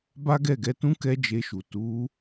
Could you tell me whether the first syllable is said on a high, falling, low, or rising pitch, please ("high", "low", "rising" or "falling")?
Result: high